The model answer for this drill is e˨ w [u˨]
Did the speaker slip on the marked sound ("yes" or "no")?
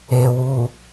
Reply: no